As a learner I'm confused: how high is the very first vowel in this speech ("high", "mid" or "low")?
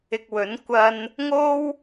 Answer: high